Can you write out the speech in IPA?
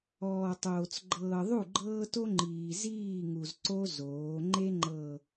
ɔː˨ tˤ oː˨ t͡s ɡ͡ǃ ɤː˨ ðˤ u˦˨ ɡ͡ǃ ɤː˦ t o˦ ŋ͡ǃ iː˨ z iː˦˨ ŋ u˨ z ǀ o˦ z oː˨˦ ŋ͡ǃ e˦ ŋ͡ǃ ɤ˨

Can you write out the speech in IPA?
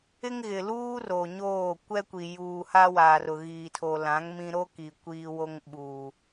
ɪ˦ ŋ ɣ ɪ˨ l uː˦ r o˨ ɲ oː˦˨ kʷ ɛ˦ kʷ i˨ j uː˨ h a˦ w aː˨ r ʊ˨ ɣ iː˨ tʰ o˨ l ã˨˦ ŋ m ĩ˦ ɾ o˦ k i˨ kʷ iː˦ w o˦ ŋ ɓ uː˨

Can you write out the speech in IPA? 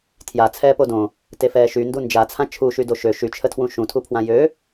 tʰ j a t͡sʰ ɛː p o d õ | t e f ɛː ʃ y n d u n d͡ʒ a t͡sʰ ã t͡ʃʰ u ʃ y d o ʃ ø ʃ y t͡ʃʰ ə tʰ w ũ ʃ ũ tʰ u pʰ w ã j ø

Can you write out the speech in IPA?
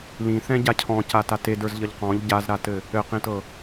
l ĩ θ ɛ̃ ɟ a cʰ ɔ̃ c a t a t e d ə˞ z ʎ ʌ ʎ q ɔ̃ ʎ ɟ a z ɾ a t ɘ | ɘ q ĩ t ɤ

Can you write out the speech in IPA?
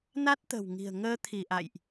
n a˦˥ t̚ t̪ ə̤˨˩ w ŋ i̤˨˩ ə̯ ŋ əː˧ t̪ʰ i˧˩ ʔ a̰˧˨ j ʔ

